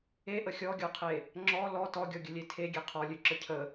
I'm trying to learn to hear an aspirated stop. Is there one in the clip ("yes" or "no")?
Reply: yes